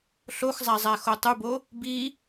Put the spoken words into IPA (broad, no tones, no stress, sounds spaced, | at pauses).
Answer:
ɬ o x zˤ æ zˤ æ x o tˤ u b o | b i